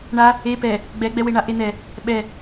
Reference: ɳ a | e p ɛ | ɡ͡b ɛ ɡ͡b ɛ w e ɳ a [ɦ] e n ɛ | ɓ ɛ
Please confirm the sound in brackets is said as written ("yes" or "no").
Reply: no